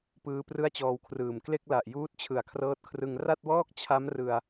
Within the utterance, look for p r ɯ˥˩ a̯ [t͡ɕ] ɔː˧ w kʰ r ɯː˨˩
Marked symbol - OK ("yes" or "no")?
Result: yes